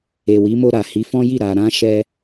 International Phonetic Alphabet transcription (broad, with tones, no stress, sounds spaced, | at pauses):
e˨ w i˨˦ m o˧ ɾ a˨ h i˨˦ f ɔ̃˦ j i˦˨ ɾ a˨ ɾ ã˧ ʃ ɛ˧